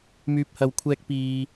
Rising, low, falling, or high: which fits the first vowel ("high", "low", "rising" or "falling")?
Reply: low